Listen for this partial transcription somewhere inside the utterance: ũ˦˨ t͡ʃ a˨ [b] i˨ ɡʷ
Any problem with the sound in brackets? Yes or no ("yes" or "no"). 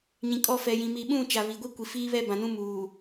yes